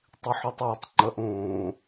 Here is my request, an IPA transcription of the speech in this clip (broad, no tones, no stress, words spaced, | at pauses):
tˤiħotˤwotˤ ŋ͡ǃəʔ õ